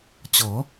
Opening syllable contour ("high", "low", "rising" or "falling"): rising